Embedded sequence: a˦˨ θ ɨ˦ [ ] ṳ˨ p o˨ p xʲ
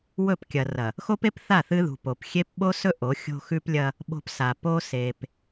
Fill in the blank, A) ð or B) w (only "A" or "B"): A